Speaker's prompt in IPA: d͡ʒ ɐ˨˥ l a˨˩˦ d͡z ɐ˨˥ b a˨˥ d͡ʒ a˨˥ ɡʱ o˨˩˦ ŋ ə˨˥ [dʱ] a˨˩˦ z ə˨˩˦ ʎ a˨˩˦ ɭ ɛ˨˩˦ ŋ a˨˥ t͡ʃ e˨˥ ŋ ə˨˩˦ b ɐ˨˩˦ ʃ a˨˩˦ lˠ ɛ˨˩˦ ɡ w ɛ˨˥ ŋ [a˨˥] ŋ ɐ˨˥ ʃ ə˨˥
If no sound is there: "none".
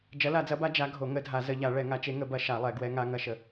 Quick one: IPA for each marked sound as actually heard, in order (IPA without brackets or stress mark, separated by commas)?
dʱ, a˨˥